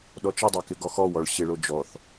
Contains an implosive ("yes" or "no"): yes